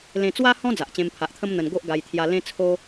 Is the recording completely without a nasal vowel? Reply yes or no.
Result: no